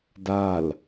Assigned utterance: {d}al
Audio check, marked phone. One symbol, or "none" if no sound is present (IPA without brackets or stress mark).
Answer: d